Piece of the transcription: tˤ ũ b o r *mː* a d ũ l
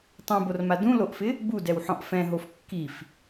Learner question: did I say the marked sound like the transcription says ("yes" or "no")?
no